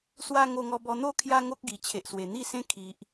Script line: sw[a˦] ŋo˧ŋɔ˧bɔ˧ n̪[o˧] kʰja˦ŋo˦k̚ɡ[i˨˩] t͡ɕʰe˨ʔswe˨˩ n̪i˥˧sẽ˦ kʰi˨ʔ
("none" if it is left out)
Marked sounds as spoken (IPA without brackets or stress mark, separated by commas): a˦, o˦, i˨˩